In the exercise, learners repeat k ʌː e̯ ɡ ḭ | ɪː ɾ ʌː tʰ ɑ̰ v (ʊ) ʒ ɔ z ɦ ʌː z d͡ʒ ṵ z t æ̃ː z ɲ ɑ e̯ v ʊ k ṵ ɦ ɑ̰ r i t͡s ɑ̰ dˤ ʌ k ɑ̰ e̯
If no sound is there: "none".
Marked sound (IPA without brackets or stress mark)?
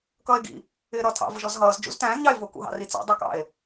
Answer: ʊ